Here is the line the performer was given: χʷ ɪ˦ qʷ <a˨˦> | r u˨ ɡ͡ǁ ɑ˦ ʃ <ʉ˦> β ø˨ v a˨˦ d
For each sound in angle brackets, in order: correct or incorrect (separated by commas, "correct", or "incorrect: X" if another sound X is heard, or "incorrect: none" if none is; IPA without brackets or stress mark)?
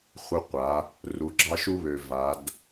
correct, incorrect: u˦